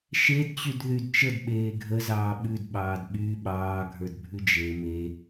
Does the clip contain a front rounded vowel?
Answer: yes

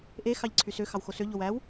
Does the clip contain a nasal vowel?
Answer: no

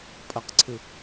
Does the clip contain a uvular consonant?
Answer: yes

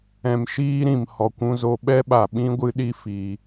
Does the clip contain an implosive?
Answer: yes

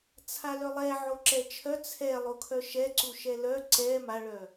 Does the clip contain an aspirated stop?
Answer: yes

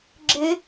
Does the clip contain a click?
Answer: yes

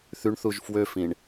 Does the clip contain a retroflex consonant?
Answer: yes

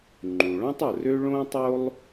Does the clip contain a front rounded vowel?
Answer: yes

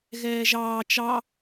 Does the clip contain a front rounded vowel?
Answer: no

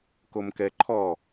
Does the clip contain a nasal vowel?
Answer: no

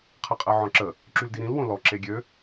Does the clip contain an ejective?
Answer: yes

